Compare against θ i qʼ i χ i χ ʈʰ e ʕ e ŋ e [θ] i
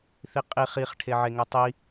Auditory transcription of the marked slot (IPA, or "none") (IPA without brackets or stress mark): tˤ